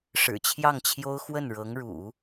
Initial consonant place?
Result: retroflex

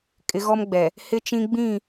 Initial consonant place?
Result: velar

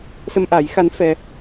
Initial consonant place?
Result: alveolar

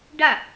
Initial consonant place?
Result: retroflex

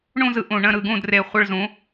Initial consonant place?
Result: retroflex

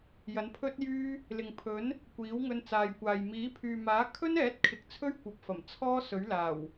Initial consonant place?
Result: palatal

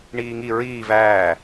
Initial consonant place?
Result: retroflex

